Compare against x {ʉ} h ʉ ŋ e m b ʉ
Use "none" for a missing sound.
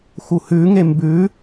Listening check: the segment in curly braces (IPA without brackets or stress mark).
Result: u